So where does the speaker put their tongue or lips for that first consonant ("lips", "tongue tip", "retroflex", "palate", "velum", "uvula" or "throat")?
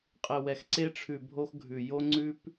uvula